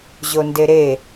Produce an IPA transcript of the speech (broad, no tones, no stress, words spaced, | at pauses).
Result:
ʑondeɾe